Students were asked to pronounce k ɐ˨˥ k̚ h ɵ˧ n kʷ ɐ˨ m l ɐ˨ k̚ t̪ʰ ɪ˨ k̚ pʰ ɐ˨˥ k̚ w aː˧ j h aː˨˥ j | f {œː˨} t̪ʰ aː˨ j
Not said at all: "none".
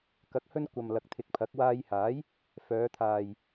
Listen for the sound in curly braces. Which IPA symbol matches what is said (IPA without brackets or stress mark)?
œː˨˧